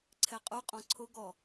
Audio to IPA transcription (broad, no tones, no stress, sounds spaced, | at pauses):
ǀʰ ɛ qʼ u qʼ ɔ̃ ǀʰ ʊ ɡ ɔ